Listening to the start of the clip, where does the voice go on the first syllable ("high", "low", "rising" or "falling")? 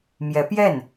rising